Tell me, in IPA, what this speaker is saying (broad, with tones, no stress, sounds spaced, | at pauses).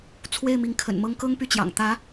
t͡sʰ w e˥˩ ɪ̯ m i˧˥ ŋ kʰ ə̰˨˩ n m ɤ˥ ŋ k ɤ˥ ŋ p y˥˩ t͡ɕ j ɑ̰˨˩ ŋ t̪ ä˧˥